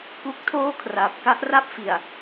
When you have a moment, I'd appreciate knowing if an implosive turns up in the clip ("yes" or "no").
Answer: no